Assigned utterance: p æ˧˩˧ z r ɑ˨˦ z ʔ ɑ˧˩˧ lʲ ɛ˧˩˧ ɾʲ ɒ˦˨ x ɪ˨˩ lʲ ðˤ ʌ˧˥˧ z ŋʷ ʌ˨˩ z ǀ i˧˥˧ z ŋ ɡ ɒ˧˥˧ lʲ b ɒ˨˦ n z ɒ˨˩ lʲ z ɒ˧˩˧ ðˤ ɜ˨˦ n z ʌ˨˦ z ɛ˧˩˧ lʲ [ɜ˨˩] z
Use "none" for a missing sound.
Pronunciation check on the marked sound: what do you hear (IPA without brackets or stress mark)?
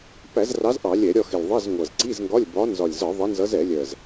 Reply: ɜ˨˩